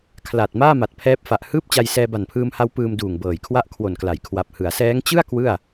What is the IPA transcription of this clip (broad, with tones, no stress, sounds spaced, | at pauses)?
kʰ l a˨˩ t̚ m aː˥˩ m a˨˩ t̚ pʰ ɛː˦˥ p̚ f a˨˩ ʔ h ɯː˥˩ p̚ t͡ɕ a˧ j s ɛː˧ b a˨˩ n pʰ ɯː˧ m h a˦˥ w p ɯː˧ m d uː˨˩ ŋ b ɤː˨˩ j kʰ w a˥˩ ʔ kʰ w o˨˩ n k l a˩˦ j kʰ w a˨˩ p̚ h ɯ˩˦ a̯ s ɛː˦˥ ŋ t͡ɕ ɯ˥˩ a̯ k w ɯ˥˩ a̯